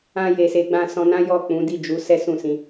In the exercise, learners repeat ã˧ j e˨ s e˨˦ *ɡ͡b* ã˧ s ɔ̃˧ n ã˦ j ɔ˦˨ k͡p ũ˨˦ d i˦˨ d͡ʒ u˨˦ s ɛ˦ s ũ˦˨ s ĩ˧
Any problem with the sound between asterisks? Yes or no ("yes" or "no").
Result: no